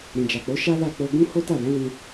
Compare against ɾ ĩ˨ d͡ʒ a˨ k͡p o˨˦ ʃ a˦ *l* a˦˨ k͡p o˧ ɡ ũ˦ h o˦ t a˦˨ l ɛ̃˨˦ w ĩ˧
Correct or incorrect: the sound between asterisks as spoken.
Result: correct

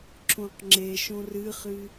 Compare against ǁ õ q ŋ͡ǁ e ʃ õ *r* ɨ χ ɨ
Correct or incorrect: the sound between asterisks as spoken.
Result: correct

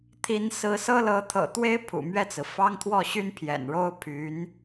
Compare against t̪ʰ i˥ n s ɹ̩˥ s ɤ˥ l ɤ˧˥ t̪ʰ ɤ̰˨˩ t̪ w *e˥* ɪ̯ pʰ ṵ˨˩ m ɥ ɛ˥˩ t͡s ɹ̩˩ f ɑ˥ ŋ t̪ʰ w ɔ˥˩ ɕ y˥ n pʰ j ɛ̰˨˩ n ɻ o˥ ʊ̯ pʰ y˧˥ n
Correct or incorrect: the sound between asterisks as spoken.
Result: correct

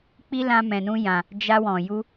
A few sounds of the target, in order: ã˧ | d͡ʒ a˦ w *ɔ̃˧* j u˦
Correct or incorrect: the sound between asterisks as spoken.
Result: correct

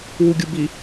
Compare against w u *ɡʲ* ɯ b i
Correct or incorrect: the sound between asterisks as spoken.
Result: correct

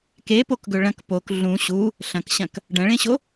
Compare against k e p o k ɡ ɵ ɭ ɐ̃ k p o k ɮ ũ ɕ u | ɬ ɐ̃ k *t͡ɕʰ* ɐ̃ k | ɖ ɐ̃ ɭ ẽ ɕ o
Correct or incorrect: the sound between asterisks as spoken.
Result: incorrect: ɕ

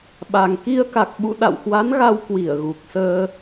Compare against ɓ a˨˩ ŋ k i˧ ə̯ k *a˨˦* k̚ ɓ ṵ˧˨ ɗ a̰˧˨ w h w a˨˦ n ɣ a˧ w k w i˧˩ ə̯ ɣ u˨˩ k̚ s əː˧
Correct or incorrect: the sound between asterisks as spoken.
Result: incorrect: a˨˩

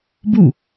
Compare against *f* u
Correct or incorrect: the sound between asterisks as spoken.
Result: incorrect: b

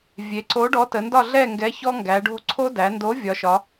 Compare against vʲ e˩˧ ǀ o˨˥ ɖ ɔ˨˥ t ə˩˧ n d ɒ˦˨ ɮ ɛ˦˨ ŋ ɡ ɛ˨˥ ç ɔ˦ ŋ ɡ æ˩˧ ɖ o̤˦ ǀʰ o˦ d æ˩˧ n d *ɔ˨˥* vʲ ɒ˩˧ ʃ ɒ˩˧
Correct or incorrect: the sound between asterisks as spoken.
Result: incorrect: o˨˥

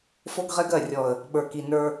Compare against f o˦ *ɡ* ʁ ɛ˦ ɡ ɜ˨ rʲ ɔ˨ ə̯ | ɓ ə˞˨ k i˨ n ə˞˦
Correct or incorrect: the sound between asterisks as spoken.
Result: correct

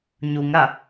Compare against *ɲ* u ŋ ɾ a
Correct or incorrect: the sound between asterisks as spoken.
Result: correct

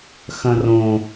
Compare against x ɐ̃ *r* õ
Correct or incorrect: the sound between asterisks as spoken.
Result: correct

